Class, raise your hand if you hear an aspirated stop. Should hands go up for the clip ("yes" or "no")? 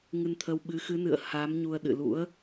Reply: yes